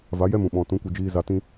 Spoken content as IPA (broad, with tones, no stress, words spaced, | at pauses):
va˨˦jɛ˦mũ˨ ɓɔ̃˨ tũ˨˦kʷɨ˨d͡ʒiː˧ za˧tĩ˦